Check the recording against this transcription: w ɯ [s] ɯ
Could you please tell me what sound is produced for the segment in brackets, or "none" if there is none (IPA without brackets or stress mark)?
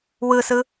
s